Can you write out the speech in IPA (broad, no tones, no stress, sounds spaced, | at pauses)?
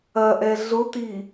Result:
ɐ ʔ ɛ ɮ ʊ t i